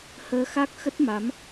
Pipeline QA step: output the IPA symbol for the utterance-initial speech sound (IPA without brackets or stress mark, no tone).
h